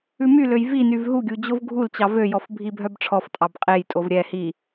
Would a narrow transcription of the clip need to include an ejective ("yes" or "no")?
yes